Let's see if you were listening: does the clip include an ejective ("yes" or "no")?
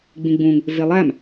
no